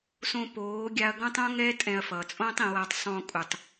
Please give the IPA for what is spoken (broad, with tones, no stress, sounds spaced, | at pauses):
s õ˧ p oː˨˦ ɡʲ a˧ ɐ̯ ɡ õ˦ tˤ õ˦ ŋ ɛ˦ tʼ ɛ̃˧ ɐ̯ f ʌː˨ t͡sʼ õː˦ tˤ ĩ˧ w a˧ tˤ sˤ õː˧ kʼ u˨ tˤ